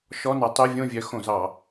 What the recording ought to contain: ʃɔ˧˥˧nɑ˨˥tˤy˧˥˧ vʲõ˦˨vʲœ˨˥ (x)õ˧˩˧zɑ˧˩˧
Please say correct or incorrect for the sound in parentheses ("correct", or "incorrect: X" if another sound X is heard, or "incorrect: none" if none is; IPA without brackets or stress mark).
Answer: correct